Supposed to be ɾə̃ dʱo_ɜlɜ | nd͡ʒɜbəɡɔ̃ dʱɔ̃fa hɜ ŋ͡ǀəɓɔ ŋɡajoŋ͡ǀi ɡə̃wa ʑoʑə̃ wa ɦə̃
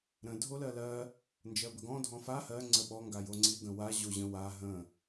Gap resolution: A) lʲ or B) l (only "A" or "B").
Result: B